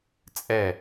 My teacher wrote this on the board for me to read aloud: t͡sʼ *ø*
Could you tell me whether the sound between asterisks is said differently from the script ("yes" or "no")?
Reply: yes